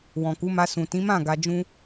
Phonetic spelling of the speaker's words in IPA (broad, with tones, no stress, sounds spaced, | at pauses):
w ɔ̃˨ k u˨˦ m a˧ s ũ˨ t ĩ˨˦ m ã˦˨ ɡ a˧ d͡ʒ ũ˦